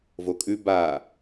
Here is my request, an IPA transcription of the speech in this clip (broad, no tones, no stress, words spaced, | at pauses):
vokʼʉ ba